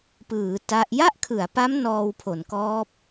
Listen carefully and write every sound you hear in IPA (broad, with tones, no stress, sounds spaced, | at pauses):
p ɯː˩˦ t a˦˥ ʔ j a˥˩ ʔ kʰ ɯ˩˦ a̯ p a˦˥ m n ɔː˧ w pʰ o˩˦ n k ɔː˦˥ p̚